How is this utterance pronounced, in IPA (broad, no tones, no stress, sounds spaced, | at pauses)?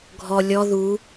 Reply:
ɡʱ ɔ lʲ ɔ ð u